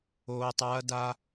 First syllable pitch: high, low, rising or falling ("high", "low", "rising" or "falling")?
low